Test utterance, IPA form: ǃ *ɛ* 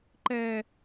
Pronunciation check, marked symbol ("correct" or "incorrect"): correct